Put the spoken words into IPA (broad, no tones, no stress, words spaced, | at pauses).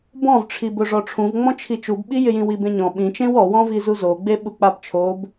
bɔ̃vʈ͡ʂʰibʊ ʐɔʈ͡ʂʰũvŋ͡mɔ̃t͡ʃʰi t͡ʃubɓijɪjĩ wibẽɲɔ̃ ɓĩt͡ʃẽw ɔwɔ̃vi zuzoɡ͡be ɓuk͡pabt͡ʃʰob